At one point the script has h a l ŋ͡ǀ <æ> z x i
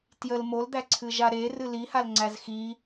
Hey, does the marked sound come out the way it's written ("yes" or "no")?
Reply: yes